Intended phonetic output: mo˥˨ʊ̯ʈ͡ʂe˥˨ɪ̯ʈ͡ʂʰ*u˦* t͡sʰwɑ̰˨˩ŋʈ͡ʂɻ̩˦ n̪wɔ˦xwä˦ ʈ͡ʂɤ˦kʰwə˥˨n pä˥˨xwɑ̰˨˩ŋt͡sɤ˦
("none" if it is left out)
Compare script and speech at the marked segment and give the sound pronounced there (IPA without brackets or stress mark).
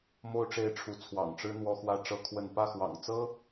u˨˦